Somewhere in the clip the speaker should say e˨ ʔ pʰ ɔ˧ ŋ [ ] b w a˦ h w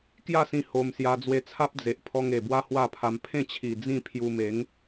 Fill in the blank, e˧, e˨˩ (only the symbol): e˨˩